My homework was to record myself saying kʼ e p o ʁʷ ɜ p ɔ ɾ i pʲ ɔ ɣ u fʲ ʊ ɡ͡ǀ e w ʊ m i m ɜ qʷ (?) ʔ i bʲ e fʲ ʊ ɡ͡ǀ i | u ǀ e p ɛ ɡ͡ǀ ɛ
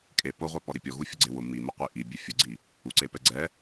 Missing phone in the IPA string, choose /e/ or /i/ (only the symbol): i